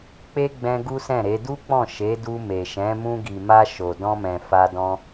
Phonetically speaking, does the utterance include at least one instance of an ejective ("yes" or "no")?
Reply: no